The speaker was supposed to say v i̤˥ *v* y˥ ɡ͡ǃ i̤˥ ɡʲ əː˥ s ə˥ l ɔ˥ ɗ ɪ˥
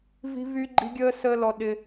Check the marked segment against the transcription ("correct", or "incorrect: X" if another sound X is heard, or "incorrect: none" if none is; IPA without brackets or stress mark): correct